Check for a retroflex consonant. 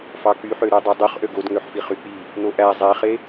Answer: absent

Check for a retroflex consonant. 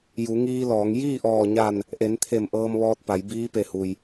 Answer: absent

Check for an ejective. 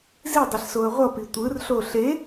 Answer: absent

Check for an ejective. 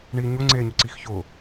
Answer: absent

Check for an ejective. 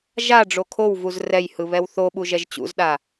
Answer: absent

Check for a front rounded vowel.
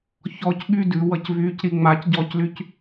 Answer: present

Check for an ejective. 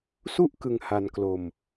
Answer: absent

